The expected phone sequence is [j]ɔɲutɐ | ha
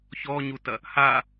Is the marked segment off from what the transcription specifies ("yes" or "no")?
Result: yes